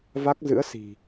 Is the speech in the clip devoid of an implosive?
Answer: yes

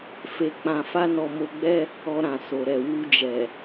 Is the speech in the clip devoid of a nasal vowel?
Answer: no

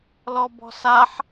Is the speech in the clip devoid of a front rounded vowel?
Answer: yes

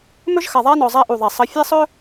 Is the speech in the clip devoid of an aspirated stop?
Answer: yes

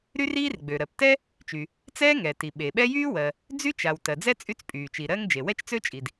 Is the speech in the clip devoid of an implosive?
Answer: no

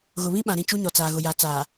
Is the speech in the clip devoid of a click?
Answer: yes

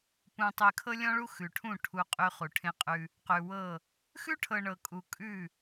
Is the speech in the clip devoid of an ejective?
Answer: no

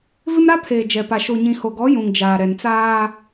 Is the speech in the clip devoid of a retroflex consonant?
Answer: yes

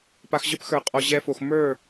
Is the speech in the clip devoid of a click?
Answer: yes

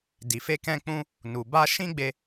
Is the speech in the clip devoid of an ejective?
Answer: yes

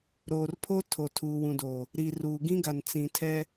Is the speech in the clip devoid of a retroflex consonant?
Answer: yes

